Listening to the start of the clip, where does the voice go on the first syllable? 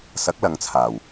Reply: rising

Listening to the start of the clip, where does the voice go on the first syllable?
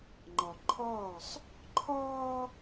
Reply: low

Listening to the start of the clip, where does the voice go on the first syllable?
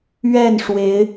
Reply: falling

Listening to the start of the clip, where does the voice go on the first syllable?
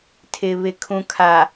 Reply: low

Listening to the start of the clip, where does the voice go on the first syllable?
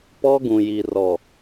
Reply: high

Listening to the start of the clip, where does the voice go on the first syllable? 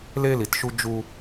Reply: high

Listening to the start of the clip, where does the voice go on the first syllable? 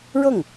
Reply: falling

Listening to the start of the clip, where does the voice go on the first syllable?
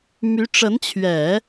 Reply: rising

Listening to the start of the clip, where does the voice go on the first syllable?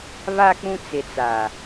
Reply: low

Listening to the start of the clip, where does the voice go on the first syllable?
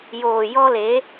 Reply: low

